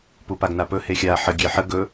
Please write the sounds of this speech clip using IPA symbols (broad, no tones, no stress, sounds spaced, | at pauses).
p u p a ɡ n a p ɵ h e xʲ a ħ ə ɡʲ e ħ ə ɡ ɵ